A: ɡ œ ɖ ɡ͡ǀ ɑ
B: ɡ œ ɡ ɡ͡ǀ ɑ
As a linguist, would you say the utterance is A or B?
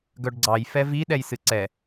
A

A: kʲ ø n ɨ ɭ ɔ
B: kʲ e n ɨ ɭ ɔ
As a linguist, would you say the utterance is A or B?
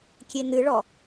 B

